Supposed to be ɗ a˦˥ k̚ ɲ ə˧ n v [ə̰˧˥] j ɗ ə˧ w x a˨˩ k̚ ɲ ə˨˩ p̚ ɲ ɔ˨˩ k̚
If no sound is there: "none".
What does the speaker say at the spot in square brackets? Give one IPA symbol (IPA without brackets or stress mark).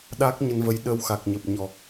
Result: ə˨˦